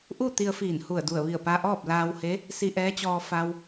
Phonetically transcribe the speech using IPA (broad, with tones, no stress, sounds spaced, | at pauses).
ʔ u˥˨ t̪ i˧ ə̯ f iː˧˩ n h u˧˩ ə̯ d u˧˩ ə̯ ʋ i˧˩ ə̯ p a˧ ʔ ɔː˥˨ p̚ l aː˧ w h e˧˥ | s i˧ ʔ ɛː˧˥ t͡ɕ ɔː˧ f a˧ w